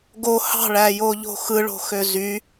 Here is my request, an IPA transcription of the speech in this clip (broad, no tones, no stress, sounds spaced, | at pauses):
ɡ o h ɑ̤ ɭ æ j o ʎ o̤ x ɯ ɭ o̤ x ø z y